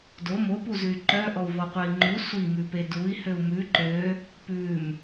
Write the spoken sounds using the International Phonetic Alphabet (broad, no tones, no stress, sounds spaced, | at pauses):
d o m o p u z ʉ y̯ ǃ œ ʔ ɔ u̯ v ɔ qʷ œ i̯ ŋ͡ǃ u sʷ i m ʉ p e d u i̯ h ø u̯ m ʉ ǃ ø | p ʉ m